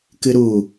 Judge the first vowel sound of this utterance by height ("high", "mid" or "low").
high